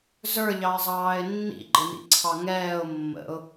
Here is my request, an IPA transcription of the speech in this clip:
z ə˞ ʎ ɑ ɪ̯ zˤ ɑː ɪ̯ nː ḭ ɡ͡ǃ ɪ n ḭ ǀʰ ɑ ŋ ɛː ʊ̯ mː ə̰ ʊ̯

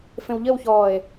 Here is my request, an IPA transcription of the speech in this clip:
f ẽ w ʎ ə w ç ɔː e̯

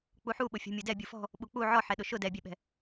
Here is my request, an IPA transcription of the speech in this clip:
k͡p u ħ u ɓ ʊ fʲ ɔ̤ mʲ ʊ d ɛ bʲ u f ɔ̤ | ɓ u k͡p u ʕ ɔ ħ ɛ ɗ ʊ ʃ ʊ d ɛ bʲ ɛ ɓ ɛ̤

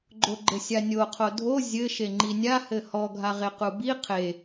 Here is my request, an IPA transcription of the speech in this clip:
ɡ͡ǃ o ɡ͡ǃ ɘ sʲ a nʲ o qʰ o dʱ o zʲ ɘ ʃ e ŋ͡ǃ i nʲ a h ɘ h ɔ ɡʱ a ʁ e q u b i qʰ e

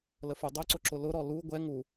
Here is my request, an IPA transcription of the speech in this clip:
l ə f u dˤ ʊ ǀ ʊ ǁ ʊ l ʊ ɾ ɔ l u ɡʷ ɛ ŋ u

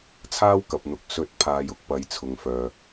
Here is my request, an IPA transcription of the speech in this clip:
t͡sʰ aː˥ w k ɐ˨ p̚ n̪ ʊ˨˥ k̚ s ɵ˨˥ t̚ pʰ aː˨ j ʊ˨ k̚ p ɐ˨˧ j t͡sʰ ʊ˨ ŋ f œː˨

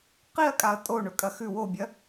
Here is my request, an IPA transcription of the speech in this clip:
q i ɐ̯ kʼ a ɐ̯ tʼ o ɳ ɵ kʼ ɐ x ʉ w o bʲ ɐ

